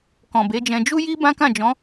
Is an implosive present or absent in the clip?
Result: absent